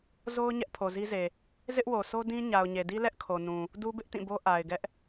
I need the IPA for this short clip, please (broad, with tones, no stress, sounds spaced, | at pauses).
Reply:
z o˦ ʊ̯ ɲ ɛ˦ ʔ pʰ o˨ z i˦ z e˨ | z ɪ˦ ʔ w o˨ s o˦ d ĩ˦ ɲ a˨ ʊ̯ ɲ e˨ d i˦ l ɛ˦ ʔ kʰ o˨ n ũ˨ | d u˦ b ɪ˦ ʔ t ĩ˦˨ b o˦ ʔ a˨ ɪ̯ ɡ ɛ˦ ʔ